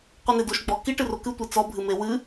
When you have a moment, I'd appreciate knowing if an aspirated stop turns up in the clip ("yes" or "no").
no